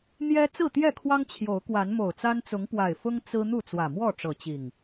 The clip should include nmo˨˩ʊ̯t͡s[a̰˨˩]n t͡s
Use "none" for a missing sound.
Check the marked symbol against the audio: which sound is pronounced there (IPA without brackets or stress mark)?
a˦